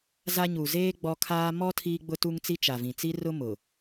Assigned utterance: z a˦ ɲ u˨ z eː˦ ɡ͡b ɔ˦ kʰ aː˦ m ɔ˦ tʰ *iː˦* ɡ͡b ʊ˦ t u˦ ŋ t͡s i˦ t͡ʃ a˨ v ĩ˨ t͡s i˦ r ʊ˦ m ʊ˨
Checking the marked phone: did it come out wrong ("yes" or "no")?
no